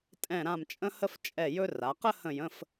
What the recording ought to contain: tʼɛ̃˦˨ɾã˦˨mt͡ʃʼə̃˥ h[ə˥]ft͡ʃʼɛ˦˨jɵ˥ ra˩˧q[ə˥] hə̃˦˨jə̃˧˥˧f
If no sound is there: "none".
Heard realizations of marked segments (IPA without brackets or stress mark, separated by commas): ə˥, ə˥